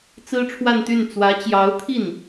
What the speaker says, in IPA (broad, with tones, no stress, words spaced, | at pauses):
t͡sɹ̩˥ʈ͡ʂʰwa˥˧nt̪y˥˩n t͡swä˧˥t͡ɕjɑ˧˥ʊ̯t̪ʰi˥˩n